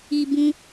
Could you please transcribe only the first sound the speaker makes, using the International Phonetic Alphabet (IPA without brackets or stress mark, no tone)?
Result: i